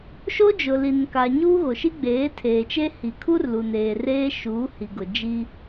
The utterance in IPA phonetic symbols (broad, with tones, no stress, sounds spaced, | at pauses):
ʃ o˦ d͡ʒ ʊ˨ l i˨ n k a˨ ɲ uː˦ ɣ o˨ ʃ i˦ ɡ͡b eː˨˦ tʰ eː˨ t͡ʃ e˦ h i˨ kʰ u˦ r l u˨ n eː˨ r eː˦ ʃ uː˨˦ h i˨ ɡ ʊ˨ d͡ʒ i˦